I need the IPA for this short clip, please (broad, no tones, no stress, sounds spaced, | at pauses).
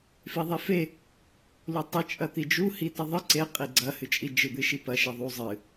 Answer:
f i ðˤ e f e | l u tˤ ɨ t͡ʃʼ ɐ t̪ i d͡ʒ u h i t ɐ ðˤ ɨ ǀ e qʼ i ɡ͡ǀ ɐ h ɨ t͡ʃʼ i d͡ʒ ɨ d̪ ɨ ʃ i p ɐ ʃ i ðˤ u zˤ ɨ